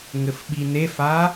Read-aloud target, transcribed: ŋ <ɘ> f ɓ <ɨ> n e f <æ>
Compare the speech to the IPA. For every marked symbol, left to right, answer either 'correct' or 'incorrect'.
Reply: correct, incorrect: i, incorrect: a

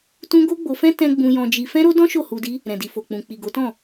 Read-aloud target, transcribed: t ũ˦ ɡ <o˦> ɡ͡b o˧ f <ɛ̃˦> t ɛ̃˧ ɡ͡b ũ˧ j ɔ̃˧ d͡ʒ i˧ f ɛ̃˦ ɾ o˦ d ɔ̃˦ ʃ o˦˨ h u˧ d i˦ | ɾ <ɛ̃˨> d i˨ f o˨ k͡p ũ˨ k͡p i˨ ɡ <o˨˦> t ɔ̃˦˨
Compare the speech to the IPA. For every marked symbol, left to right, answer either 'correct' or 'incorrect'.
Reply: correct, correct, correct, correct

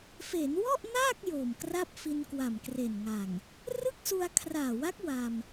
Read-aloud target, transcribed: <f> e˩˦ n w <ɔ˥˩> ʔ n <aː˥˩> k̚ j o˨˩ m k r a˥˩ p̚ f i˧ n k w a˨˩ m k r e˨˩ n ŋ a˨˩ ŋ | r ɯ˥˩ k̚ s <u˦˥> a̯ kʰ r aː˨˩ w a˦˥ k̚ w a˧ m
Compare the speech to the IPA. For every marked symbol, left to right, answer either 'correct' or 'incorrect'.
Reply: correct, correct, correct, incorrect: u˧

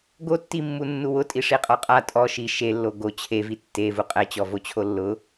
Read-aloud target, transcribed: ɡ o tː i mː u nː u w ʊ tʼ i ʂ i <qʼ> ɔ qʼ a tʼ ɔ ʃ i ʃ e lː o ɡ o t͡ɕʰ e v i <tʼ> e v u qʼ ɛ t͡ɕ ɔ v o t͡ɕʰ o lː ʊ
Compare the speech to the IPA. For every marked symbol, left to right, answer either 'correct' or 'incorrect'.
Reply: correct, incorrect: tː

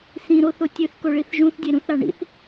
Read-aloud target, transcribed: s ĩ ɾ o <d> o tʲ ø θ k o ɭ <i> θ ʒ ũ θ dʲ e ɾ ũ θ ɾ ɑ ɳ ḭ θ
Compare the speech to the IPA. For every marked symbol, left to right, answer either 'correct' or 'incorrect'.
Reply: incorrect: θ, correct

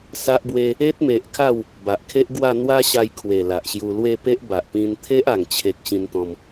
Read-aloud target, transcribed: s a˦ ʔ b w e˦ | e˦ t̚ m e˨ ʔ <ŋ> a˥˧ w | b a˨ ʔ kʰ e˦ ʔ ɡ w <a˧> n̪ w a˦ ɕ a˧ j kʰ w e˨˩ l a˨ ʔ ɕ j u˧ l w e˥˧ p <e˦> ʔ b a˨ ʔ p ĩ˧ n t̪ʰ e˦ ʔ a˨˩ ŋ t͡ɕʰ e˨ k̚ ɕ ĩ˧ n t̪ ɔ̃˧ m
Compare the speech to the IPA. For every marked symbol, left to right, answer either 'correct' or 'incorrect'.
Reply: incorrect: kʰ, incorrect: a˥˧, correct

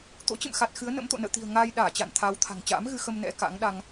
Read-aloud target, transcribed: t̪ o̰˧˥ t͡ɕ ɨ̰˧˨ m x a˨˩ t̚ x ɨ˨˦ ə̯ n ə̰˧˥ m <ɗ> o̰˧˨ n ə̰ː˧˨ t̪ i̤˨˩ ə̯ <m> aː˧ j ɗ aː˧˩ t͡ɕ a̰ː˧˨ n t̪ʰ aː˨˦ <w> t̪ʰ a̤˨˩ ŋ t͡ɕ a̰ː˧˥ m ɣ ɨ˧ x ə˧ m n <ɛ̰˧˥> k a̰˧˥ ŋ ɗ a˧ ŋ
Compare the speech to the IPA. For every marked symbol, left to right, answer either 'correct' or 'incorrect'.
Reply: incorrect: t̪, incorrect: ŋ, correct, correct

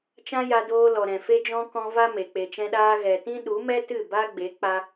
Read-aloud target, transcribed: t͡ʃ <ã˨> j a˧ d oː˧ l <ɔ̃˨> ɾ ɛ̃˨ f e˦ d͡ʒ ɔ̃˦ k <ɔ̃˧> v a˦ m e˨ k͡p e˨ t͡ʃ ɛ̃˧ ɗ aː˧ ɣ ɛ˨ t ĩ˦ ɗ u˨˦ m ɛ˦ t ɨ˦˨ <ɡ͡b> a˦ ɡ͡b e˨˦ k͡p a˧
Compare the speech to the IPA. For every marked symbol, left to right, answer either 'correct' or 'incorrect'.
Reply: incorrect: ã˦, incorrect: ɔ˨, correct, incorrect: b

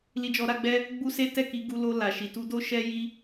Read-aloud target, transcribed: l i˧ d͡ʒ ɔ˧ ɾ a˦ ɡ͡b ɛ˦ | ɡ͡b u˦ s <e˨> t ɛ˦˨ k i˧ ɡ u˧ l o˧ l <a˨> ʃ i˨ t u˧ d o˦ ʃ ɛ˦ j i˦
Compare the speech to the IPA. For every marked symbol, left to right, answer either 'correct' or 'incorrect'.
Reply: incorrect: e˦, correct

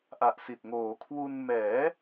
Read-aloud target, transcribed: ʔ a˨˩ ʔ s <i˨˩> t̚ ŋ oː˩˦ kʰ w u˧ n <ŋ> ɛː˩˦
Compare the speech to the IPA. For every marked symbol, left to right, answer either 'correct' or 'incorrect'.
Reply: correct, incorrect: m

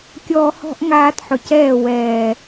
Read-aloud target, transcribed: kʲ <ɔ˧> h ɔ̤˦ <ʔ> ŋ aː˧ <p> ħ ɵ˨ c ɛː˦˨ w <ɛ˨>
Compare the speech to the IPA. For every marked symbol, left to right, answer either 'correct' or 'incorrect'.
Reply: incorrect: ɔː˧, correct, incorrect: t, incorrect: ɛː˨

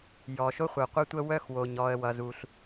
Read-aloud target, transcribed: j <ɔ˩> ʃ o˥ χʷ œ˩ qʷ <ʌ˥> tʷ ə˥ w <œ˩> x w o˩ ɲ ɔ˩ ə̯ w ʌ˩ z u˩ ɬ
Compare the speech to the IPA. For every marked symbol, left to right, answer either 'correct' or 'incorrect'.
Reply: correct, correct, incorrect: œ˥

